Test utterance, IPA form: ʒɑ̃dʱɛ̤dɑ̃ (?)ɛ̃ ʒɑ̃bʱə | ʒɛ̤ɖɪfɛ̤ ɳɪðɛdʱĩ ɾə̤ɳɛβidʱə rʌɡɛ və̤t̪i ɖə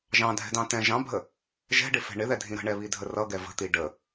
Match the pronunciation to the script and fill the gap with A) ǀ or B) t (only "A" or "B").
B